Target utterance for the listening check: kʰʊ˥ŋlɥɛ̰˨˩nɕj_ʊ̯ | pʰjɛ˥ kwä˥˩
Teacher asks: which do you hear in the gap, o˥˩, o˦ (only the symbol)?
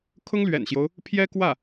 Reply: o˦